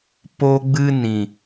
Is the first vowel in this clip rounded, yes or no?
yes